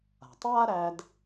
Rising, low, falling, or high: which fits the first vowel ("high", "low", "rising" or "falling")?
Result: low